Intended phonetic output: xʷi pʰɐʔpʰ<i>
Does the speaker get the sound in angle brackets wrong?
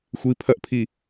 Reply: no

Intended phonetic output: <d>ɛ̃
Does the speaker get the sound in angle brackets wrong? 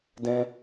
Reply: no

